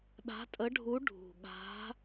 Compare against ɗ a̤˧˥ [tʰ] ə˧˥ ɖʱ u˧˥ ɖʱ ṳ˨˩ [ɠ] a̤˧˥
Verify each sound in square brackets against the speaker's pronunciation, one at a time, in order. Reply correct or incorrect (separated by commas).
incorrect, correct